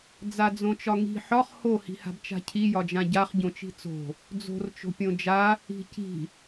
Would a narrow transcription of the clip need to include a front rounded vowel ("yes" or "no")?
no